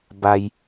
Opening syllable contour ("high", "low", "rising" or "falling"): low